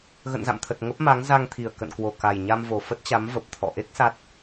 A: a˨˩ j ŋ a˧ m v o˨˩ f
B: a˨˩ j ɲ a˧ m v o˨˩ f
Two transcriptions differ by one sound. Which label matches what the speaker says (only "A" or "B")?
B